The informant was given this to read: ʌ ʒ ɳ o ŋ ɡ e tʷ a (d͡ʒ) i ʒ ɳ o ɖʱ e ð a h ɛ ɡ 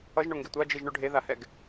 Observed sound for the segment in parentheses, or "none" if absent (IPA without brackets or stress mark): d͡ʒ